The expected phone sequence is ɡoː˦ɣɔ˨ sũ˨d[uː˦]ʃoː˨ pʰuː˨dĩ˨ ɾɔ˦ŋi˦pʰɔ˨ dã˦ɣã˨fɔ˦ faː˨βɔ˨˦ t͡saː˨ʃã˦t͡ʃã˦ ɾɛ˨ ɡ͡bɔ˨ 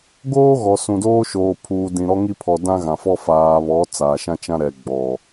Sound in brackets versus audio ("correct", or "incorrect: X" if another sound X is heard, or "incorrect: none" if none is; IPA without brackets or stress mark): incorrect: oː˦